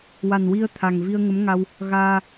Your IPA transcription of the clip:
wa˨˩nwi˧ə̯ t̪ʰa˨˩ŋvi˧ə̯ŋə˧˥mŋa˧w | ɣaː˧

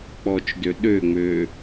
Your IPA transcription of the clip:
k͡pɔt͡ʃdø ɗøŋ͡mø

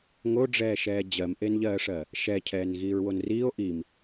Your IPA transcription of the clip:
ŋoɖ͡ʐɛːʃɛː d͡ʑɜmʔenʎɜːʂɜ | ʃɛcʰɛːn ɣiːɹwonriːo̯ ʔim

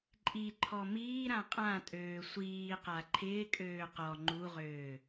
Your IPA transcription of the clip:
ǃʼiǃʰɔ miː ɾãqʼãtʼøː sʷiːqa ǃʰɪːkʼøː qɔ ŋ͡ǃuʁøː

